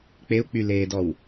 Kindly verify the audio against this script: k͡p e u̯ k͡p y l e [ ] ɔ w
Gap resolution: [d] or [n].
d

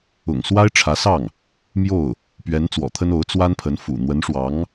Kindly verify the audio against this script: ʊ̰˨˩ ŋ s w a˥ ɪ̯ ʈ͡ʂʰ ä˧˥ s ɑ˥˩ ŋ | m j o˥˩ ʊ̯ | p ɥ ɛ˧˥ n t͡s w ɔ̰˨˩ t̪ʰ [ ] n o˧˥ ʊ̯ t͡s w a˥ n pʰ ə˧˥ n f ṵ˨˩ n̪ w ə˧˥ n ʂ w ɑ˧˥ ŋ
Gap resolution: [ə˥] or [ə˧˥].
ə˥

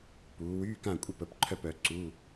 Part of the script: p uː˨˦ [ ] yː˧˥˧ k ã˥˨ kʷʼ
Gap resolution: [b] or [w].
w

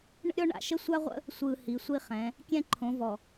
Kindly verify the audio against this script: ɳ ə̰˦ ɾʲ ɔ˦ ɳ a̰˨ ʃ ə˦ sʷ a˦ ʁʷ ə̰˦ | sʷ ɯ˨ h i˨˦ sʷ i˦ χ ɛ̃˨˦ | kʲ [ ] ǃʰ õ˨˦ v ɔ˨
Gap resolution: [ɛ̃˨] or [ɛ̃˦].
ɛ̃˦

